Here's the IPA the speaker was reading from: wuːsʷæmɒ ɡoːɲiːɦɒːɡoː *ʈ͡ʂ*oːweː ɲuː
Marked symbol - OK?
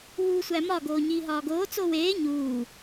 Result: no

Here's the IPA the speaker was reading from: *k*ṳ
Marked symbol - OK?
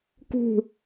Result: yes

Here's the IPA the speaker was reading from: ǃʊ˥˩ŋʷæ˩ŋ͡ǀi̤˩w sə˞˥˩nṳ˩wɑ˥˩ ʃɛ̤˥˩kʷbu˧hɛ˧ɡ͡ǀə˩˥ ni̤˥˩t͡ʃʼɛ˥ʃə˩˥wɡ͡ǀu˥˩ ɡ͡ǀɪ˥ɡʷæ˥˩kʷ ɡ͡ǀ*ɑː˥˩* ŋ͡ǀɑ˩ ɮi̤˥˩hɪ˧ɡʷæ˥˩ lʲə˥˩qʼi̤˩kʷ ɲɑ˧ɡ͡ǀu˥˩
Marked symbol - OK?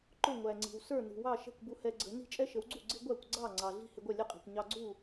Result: no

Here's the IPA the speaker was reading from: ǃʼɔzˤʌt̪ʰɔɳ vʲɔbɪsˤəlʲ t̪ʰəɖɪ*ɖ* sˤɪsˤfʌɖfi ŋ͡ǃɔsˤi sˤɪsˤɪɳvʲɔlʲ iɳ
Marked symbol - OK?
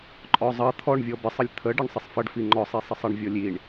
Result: no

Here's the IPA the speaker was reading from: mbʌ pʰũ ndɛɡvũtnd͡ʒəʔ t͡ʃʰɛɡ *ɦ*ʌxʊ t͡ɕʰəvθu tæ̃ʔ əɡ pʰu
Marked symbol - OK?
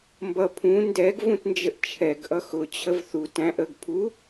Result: no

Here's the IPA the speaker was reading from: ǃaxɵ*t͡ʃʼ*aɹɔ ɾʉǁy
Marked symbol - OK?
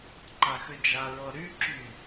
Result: no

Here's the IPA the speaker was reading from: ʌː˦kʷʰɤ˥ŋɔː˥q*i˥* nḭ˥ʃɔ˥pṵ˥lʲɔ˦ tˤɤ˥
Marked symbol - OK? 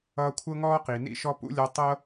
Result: no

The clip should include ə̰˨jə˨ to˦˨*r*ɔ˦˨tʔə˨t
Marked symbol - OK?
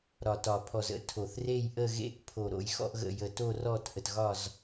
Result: yes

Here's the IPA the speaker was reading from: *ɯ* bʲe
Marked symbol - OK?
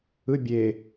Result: yes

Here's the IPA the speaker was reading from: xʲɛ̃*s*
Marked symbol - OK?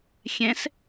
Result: yes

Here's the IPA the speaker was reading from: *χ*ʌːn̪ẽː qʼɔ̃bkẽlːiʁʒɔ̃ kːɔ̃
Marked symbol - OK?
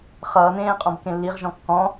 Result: yes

